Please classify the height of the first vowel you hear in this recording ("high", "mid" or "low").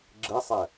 high